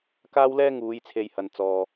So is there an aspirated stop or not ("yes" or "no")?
yes